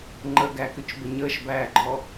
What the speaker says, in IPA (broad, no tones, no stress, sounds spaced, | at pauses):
ŋ͡ǃ ə ɡ æ k ʏ t͡ʃ b ə ɲ əː ʃ b æː ɡ͡ǃ ɔ